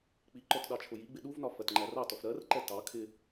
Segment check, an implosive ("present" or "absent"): present